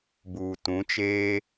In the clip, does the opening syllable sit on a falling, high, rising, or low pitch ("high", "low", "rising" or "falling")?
low